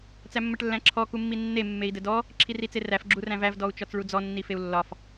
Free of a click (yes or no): no